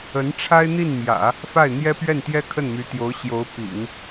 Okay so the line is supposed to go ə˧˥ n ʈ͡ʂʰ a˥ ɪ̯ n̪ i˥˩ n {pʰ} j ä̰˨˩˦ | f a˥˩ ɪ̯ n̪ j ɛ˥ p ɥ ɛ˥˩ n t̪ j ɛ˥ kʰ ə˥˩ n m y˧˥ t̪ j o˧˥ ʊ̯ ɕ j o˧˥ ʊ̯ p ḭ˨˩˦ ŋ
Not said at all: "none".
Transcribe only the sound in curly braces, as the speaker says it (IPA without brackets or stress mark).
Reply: m